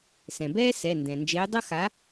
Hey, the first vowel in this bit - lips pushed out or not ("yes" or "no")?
no